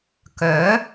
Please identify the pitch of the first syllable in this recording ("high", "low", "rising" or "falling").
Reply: rising